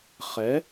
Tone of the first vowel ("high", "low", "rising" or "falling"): rising